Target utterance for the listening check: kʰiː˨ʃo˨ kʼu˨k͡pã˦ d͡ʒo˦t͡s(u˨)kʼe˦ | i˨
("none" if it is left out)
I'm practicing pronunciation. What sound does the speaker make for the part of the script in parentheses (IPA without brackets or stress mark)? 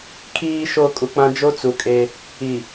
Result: u˨